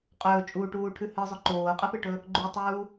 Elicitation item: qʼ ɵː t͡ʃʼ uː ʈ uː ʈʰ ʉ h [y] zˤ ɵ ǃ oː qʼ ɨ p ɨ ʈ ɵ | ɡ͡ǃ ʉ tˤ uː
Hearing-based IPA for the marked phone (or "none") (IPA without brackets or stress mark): ɨ